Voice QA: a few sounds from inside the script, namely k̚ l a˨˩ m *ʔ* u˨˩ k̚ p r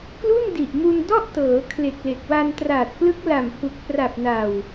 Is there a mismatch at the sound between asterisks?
yes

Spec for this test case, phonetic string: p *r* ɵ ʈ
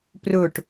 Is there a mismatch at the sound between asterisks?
no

